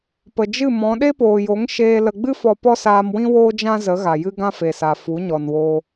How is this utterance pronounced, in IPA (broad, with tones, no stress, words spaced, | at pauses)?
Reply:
pə˨d͡ʒɨ˦˨mɔ̃˨˦ ɗe˦poː˨jo˨˦ŋ ʃeː˧ lə˨ɡ͡bɨ˦ fɔ˧pɔ˦saː˧mwĩ˦ woː˦d͡ʒã˦ zə˨˦ɣa˨ jɨ˦ɡã˦fe˨sa˨ fu˨˦ɲɔ˨n woː˧